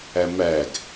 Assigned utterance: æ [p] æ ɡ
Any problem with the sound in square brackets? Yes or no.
yes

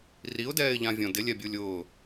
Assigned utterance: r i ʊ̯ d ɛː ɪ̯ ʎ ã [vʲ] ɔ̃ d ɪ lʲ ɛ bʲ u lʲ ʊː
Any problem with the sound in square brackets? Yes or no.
no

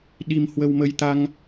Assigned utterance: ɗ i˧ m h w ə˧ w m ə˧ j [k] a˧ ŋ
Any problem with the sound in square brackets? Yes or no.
yes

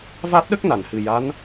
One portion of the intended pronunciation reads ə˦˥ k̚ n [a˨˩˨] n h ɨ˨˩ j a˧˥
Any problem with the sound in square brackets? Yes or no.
no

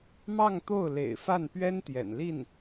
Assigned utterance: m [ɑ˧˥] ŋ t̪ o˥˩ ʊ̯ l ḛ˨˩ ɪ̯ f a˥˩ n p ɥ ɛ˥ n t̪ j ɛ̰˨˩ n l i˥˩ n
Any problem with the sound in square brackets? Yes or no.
yes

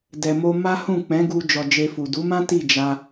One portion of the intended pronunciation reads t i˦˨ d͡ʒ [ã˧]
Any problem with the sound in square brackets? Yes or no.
yes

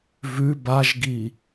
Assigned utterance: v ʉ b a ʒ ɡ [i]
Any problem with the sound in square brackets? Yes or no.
no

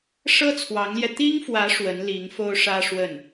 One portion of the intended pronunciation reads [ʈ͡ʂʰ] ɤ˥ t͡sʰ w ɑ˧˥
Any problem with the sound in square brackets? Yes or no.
yes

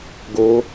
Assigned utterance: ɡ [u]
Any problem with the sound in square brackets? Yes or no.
yes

